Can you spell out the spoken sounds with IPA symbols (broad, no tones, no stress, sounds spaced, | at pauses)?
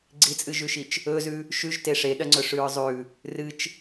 ɡ͡ǀ i t͡sʼ ɨ ʒ ʉ ʃ i t͡ʃ | ɵ z ʉ | ʃ ʉ ʒ t e ʂ e ɗ ɐ ŋ͡ǀ ɵ ʂ ʉ ɹ zˤ ʉ | r ɨ t͡ʃ